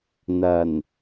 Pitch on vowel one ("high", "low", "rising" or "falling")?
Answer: low